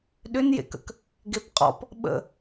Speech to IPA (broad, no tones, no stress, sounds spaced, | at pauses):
ɗ ʏ n j ḛ k ə̰ k | ɡ e p qʼ ɔ̰ p | ɓ ə̰